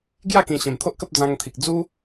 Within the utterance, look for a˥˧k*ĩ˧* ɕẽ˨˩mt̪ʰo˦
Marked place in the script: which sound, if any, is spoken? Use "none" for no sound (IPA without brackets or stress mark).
ĩ˨˩